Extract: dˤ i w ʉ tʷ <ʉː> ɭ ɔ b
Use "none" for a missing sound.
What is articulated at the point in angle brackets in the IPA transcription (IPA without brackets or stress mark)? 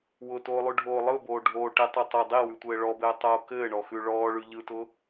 ɘː